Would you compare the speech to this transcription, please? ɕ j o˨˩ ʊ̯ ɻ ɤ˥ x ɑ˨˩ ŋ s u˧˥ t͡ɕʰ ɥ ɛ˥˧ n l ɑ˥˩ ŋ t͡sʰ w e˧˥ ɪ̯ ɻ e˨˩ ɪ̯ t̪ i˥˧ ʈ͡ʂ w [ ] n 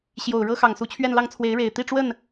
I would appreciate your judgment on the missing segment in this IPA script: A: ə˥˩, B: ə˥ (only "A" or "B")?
A